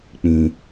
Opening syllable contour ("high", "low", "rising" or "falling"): low